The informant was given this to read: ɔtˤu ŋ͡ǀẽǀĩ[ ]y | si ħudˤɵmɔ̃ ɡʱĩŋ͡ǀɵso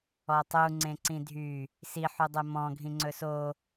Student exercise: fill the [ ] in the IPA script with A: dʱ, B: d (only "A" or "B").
A